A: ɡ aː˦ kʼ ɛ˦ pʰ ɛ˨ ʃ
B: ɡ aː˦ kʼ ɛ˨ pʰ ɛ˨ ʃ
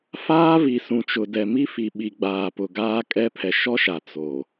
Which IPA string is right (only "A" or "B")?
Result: A